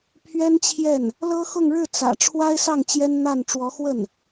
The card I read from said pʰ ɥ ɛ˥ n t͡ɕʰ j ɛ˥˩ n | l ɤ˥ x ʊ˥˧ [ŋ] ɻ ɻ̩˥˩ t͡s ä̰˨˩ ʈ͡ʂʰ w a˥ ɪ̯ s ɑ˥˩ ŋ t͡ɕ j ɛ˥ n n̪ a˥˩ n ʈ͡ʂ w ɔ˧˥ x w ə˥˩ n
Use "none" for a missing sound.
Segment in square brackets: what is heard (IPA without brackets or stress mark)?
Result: ŋ